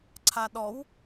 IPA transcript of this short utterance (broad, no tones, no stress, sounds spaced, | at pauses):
ǀʰ a ɗ ɔ w